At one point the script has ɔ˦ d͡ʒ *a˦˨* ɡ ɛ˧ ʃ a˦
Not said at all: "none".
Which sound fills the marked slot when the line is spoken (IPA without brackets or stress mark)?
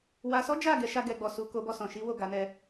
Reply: a˦˨